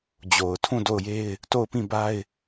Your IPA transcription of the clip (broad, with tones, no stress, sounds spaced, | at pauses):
d͡ʑ o˨ ʊ̯ tʰ ũ˦˨ d o˦˨ ʊ̯ j e˦ ɪ̯ | t o˦˨ ʊ̯ p ĩ˦˨ b a˦ ɪ̯